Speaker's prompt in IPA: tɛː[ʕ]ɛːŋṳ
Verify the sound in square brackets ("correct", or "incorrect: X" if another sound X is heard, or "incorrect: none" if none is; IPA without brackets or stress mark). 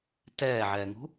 correct